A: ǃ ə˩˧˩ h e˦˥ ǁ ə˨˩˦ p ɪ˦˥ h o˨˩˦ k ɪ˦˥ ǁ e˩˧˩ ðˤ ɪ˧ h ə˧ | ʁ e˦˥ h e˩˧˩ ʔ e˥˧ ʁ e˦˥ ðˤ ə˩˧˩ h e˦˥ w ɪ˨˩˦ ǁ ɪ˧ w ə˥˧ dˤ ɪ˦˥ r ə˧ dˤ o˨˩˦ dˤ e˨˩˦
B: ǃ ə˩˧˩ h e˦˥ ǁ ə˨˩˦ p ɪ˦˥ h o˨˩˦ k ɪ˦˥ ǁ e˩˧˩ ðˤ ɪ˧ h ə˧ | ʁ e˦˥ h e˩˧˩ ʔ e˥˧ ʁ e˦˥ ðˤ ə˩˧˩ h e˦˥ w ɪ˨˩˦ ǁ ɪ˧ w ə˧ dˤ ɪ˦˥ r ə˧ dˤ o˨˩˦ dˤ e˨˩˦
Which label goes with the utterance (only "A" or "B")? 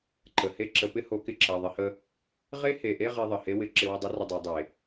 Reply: A